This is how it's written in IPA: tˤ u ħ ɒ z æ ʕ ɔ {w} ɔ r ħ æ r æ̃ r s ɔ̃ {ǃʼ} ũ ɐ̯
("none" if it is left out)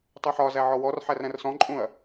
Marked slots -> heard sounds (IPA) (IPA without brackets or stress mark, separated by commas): w, ǃʼ